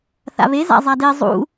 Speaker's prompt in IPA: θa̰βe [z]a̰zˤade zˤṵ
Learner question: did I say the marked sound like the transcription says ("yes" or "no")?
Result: yes